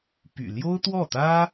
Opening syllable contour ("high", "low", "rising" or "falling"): low